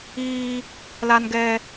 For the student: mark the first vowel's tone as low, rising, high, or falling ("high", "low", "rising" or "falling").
high